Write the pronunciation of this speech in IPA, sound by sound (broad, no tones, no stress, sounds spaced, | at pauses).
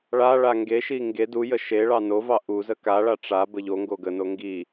ɭ a ɭ a ŋ ɡ e ʃ i ŋ ɡ e d u j ə ʃ e ɭ ɑ n o v ɑ ʔ u z ə k a ɭ a ʈ͡ʂ a b ə ʎ o ŋ ɡ o ɡ ə n o ŋ ɡ i